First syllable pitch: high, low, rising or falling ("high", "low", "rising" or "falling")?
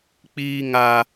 high